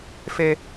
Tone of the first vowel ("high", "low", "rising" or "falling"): high